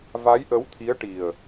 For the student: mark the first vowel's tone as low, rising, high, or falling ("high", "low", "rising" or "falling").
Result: rising